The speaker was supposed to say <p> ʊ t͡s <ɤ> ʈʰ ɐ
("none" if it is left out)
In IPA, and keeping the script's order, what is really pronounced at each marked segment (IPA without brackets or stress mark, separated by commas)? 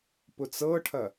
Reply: p, ɤ